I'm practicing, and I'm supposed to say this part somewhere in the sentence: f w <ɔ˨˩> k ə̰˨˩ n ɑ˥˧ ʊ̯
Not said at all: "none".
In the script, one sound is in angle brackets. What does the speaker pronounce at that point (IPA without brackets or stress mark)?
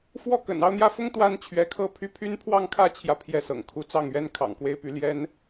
ɔ˥˩